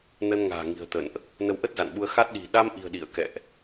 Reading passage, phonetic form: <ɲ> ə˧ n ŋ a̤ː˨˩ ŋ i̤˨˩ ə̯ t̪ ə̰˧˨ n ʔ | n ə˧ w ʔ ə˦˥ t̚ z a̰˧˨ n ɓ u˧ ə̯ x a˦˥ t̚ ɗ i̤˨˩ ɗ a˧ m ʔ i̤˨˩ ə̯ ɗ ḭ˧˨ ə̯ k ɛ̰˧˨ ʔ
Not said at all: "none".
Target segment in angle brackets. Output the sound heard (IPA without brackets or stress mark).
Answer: n